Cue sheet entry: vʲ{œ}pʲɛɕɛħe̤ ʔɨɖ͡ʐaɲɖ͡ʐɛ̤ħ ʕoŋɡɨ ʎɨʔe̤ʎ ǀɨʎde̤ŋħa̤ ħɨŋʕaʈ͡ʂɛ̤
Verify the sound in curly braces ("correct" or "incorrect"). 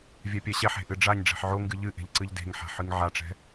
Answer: incorrect